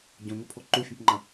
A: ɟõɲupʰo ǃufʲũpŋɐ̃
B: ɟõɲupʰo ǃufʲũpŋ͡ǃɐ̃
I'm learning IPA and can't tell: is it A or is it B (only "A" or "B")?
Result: B